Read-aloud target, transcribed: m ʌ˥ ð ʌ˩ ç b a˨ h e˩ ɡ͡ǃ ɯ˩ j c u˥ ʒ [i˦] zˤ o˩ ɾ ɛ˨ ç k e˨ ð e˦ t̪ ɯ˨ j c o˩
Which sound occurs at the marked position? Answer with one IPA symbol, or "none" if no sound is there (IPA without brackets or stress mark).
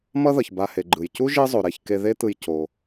i˦